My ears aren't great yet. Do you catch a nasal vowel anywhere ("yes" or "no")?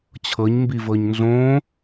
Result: yes